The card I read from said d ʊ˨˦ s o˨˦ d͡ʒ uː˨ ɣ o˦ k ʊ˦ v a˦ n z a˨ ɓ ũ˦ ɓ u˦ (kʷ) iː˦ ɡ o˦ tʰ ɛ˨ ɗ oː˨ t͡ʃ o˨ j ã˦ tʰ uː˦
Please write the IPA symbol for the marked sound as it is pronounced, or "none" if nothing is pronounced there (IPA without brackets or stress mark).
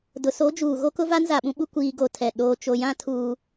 kʷ